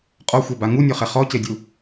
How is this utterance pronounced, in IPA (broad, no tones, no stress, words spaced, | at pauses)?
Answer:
qʼɔxʷɛba ŋunʲɔχɛ χɔcedʲu